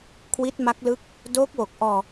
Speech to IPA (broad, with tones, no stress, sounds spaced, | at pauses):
kʰ w i˦˥ t̚ m a˦˥ k̚ l ɯ˦˥ k̚ | d oː˦˥ k̚ w o˨˩ k̚ ʔ ɔː˧